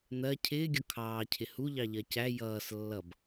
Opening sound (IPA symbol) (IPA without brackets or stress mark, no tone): n̪